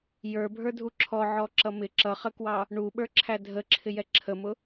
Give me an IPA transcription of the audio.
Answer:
j ə˞ bʱ ə˞ dʱ u ǁʰ ɔ ʕ ɔ ǁ ʌ m ɪ ǁ ʌ χ ə k w ɑ | ɳ u ɓ ə˞ ǁʰ æ dʱ ə ǁʰ ɪ j ɛ ǁʰ ə m ʊ

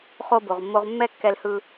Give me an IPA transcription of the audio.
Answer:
χ o˧ b o˨ ʁ mː o˧ ʁ mː ɛ˦ kː ɛ˧ l h ɯ˧

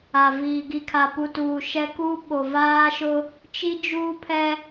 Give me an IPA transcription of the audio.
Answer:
a˨ v iː˨ ɡ i˨ kʰ a˨ p u˨ t uː˨ ʃ ɛ˦ k u˦ ɓ o˨ v aː˦ ʃ ʊ˦ | t͡ʃ i˦ d͡ʒ uː˦ pʰ ɛ˦

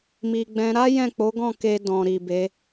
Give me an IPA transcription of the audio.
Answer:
m i˨ ɡ͡b ɛ̃˧ ɾ a˦ j ɛ̃˦˨ k͡p o˨˦ ɡ ɔ̃˦˨ k e˧ d ɔ̃˨ ɾ i˨ b e˨˦

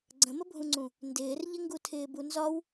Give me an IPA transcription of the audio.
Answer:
ɡ͡ǀ ə̃ m ə bʱ ũ ŋ͡ǀ ũ | n d ɪː r ʎ ɪ ŋ ɡ u tʰ ɪː b u n z ɒ w

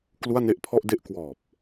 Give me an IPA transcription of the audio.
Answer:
k l u˥˩ a̯ n e˥˩ ʔ pʰ ɔ˥˩ ʔ d e˥˩ ʔ k w ɔː˨˩ p̚

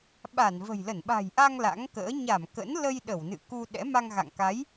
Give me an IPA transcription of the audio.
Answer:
ɓ a˧˩ n v ə̤˨˩ j l ə˧˩ n ɓ a̤˨˩ j ʔ a˧ ŋ l a̰˧˥ ŋ k ə̰ː˧˥ ɲ a˧˩ m k ə̰˧˥ n l ə˧ j ɗ ə˧˩ w n ɨ̰˧˨ k u˧ ɗ ɛ̰˧˥ m a˧ ŋ ɣ a̰˧˨ ŋ k a˨˦ j

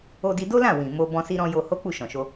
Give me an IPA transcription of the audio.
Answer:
o˧ d i˧ d o˦ l ã˦˨ w ĩ˨ m o˧ b ɔ̃˧ s i˧ ɾ ɔ̃˧ j o˧ h o˦ k͡p u˦˨ ʃ ɔ̃˨ ʃ o˧

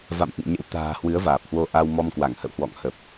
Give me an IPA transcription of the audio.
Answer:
v a̰˧˨ m ʔ ɨ̰˧˨ ŋ ɲ ə̰˧˥ w t̪ a̤ː˨˩ h w ɨ˨˦ ə̯ v aː˨˩ p̚ h w o˧ ʔ a˧ w m ɔ˧ m k w a˧˩ ŋ h ə̰˧˨ w h w ɔ̰˧˨ ŋ h ə˨˩ p̚

